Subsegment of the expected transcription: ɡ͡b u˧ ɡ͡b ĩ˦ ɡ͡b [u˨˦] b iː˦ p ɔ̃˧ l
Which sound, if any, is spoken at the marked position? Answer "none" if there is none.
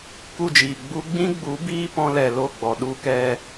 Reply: u˨˦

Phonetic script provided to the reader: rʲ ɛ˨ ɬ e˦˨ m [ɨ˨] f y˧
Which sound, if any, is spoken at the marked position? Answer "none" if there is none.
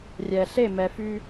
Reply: ɛ˨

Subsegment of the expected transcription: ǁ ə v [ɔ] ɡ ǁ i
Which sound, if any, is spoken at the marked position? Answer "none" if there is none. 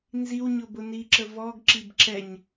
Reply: ɔ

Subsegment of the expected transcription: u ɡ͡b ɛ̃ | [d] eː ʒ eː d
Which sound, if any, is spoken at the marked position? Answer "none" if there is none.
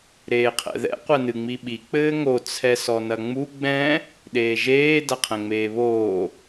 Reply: ɗ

